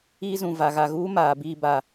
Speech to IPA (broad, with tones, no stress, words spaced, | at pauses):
iː˦zũ˨va˨ ɣa˨ɣuː˦ maː˨biː˦˨ba˨